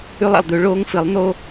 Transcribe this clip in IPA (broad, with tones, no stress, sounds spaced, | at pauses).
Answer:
ʉ˦ lˠ a̰˨ lˠ d̪ ʉ˦ ɭ oː˦ ŋ f ɨ˨˦ lˠ n̪ o˦